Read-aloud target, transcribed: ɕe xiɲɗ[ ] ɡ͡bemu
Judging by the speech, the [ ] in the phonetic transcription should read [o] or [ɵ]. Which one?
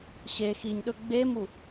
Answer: ɵ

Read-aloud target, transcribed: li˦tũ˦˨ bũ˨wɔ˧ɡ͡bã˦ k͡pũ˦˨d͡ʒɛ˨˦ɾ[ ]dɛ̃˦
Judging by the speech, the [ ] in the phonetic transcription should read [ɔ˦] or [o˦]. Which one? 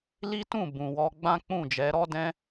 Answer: ɔ˦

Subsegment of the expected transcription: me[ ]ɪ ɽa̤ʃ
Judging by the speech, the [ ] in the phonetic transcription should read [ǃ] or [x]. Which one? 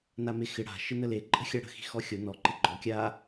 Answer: x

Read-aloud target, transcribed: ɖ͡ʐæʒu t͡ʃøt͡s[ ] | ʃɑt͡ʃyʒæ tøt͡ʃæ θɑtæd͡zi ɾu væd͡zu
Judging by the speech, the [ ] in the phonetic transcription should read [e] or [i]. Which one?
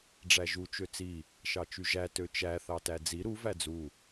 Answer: i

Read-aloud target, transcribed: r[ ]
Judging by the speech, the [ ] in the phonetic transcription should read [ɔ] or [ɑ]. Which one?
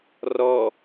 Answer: ɔ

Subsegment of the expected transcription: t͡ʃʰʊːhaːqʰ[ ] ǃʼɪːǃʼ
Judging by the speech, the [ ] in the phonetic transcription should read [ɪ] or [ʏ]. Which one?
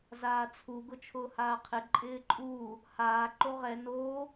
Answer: ɪ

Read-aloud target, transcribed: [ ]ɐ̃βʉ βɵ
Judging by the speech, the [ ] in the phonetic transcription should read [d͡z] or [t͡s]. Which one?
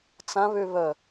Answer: t͡s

